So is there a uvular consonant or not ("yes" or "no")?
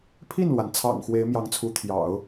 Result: no